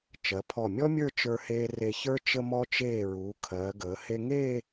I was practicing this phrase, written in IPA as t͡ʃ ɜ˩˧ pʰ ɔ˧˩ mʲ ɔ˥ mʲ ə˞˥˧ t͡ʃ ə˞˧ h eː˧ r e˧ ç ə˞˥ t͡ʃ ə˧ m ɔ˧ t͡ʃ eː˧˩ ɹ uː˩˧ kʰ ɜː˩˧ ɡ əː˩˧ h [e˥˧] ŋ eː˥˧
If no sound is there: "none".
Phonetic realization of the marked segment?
e˧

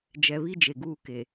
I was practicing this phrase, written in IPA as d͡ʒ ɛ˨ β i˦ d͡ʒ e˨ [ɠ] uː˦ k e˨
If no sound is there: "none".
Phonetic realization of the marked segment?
ɡ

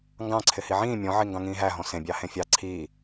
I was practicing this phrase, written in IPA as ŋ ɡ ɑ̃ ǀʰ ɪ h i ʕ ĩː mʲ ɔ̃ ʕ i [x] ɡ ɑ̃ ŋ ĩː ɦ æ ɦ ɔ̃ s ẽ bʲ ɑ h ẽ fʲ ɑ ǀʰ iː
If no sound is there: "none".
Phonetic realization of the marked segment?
ŋ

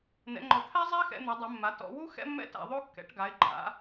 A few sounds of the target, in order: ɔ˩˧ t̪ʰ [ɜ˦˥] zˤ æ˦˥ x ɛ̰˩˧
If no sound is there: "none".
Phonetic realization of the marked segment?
æ˦˥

